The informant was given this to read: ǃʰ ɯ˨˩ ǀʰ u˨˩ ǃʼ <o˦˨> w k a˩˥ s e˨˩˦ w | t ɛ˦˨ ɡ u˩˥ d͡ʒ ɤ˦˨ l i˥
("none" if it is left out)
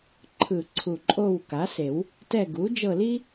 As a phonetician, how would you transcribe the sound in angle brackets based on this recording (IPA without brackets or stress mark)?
o˦˨